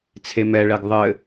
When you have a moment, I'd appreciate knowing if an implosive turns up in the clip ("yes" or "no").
no